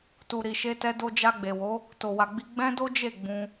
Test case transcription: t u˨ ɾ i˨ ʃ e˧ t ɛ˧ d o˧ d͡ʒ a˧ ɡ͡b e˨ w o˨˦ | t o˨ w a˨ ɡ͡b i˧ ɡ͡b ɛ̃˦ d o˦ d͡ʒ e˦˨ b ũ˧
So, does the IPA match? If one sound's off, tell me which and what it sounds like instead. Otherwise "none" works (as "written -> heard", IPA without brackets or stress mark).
b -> ɡ͡b